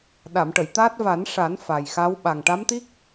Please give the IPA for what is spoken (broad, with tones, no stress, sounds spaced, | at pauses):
ɗ a˨˩˨ m ʈ ə˨˩˨ j t̪ aː˦˥ t̚ v a˨˩˦ n ʂ a˨˩˦ n f a˨˩ j x a˧˥ w ɓ a˨˩ ŋ ʈ a˧˥ m t̪ i˦˥ k̚